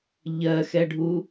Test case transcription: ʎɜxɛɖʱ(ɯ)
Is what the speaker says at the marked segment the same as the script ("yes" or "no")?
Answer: no